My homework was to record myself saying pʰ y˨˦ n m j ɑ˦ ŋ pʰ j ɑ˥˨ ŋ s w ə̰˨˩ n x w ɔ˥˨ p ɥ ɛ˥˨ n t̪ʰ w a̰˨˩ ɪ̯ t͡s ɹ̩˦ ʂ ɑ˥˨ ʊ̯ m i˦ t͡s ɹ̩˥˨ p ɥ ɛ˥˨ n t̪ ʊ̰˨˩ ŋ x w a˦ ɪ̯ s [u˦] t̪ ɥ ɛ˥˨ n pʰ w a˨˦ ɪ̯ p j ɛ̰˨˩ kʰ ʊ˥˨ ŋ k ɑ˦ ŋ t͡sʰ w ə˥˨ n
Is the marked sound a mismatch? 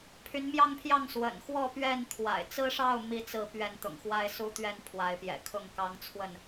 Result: no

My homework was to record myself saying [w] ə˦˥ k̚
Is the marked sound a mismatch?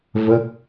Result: yes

